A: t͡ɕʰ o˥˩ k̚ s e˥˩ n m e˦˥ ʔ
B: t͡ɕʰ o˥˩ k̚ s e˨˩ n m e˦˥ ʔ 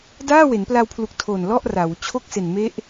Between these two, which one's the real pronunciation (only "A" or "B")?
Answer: B